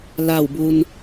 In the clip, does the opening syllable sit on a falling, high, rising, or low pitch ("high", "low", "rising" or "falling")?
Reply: falling